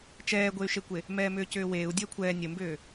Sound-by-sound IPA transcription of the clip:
t͡ʃ ɛː ɡʷ e y̯ ʃ e kʷ e | m ɛː m ʏː c ʏː w eː u̯ dʲ əː kʷʰ ɛː nʲ ə m b ʏː

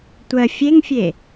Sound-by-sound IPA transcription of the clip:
tʷ ɜ fʲ e ŋ fʲ e

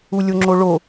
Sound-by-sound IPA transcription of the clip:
u lʲ o ŋ͡ǁ o ɭ o

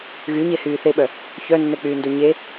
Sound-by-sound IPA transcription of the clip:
ɣ y ɲ e h yː θ e ɓ œ | ç œ nː ɛ k͡p yː n d o ɲ e

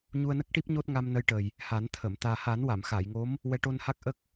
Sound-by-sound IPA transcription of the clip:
ɲ u˧ ə̯ n ə˦˥ k̚ ʈ i˦˥ p̚ ɲ o˦˥ t̚ ŋ a˧ m n ə˧ j ʈ ə˨˩ j | h a˨˩˦ n t̪ʰ ə˨˩˨ m t̪ aː˨˩ h a˨˩˦ n w a˨˩˨ m x a˨˩˨ j ŋ o˧˥ m | w ɛ˧˥ ʈ o˧ n h a˦˥ k̚ ʔ ə˦˥ k̚

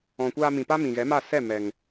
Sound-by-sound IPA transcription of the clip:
ɔ̃˨ kʷ aː˧ m ĩ˨ p a˦ m ĩ˨ ɣ ɛ˨˦ m a˦˨ s ɛ˦˨ m ɛ˨ ŋ

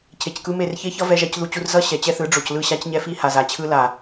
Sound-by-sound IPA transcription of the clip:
cʰ e˨ c k ɯ˦ m e˦˨ r ç e˦ ç ʌ˦ v ɛ˦ ʒ a˦ c ð u˦ t͡ɕ u˦ r z ʌ˦ ɕ ɛ˨ t͡ɕ ɛ˦ θ ɯ˨˦ ɖ͡ʐ o˨ c l ɯ˦˨ ɕ a˦ c ɲ ɛ˦ f i˦ h a˨ z a˨ t͡ɕʰ ɯ˦ l a˨

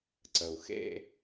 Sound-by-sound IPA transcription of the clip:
ǀ ə˩ u̯ x ḛ˥˧

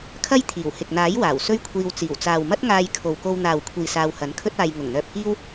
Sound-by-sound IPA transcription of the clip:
kʰ ɐ˥ j t̪ʰ iː˨˩ w h ɪ˨ k̚ n̪ aː˨˥ j w aː˨˩ w s ɵ˥ ɥ kʷʰ iː˧ w t͡s iː˨˩ w t͡s aː˨ w m ɐ˥ t̚ ŋ aː˧ j kʰ o˨ w k o˧ w n̪ aː˨ w kʷʰ iː˨ s aː˧ w h ɐ˨˥ n kʰ ɵ˥ t̚ aː˧ j ŋ ʊ˨˩ ŋ n̪ œː˧ p̚ k iː˥ w

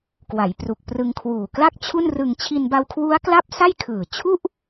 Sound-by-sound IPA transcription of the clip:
k w a˩˦ j p r u˨˩ k̚ p r ɯ˧ ŋ kʰ w uː˨˩ k l a˥˩ k̚ t͡ɕʰ u˥˩ n r ɯ˧ ŋ t͡ɕʰ i˧ n b a˧ w kʰ w u˦˥ a̯ k l a˥˩ p̚ s a˥˩ j kʰ ɯː˨˩ t͡ɕʰ u˥˩ ʔ

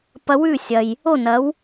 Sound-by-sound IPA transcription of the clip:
p ɐ˧ w ʉ˥˩ sʲ ɐ˩ j | o˥˩ n ɐ˩˥ w

